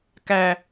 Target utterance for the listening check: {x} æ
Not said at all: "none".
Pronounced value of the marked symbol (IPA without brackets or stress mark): k